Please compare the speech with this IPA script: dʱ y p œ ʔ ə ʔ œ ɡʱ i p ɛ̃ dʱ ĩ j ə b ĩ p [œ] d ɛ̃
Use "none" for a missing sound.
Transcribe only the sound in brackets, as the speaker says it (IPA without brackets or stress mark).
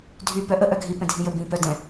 œ